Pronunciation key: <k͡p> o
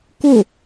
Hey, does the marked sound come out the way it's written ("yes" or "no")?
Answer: no